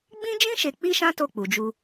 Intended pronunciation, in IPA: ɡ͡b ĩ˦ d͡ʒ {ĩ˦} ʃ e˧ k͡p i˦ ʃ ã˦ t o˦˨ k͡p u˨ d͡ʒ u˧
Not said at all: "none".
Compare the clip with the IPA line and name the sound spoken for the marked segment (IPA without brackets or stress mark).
ĩ˦